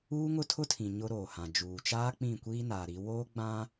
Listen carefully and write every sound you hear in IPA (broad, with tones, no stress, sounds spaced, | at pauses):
uː˦ ŋ ʊ˦ tʰ ʊ˦ tʰ ĩ˨ ɲ ʊ˦ ɾ oː˨ h ã˨ d͡ʒ uː˨ t͡ʃ aː˦ k͡p ĩ˦˨ kʷ iː˦ n aː˨ ɾ i˨˦ w oː˦ ɡ͡b ã˦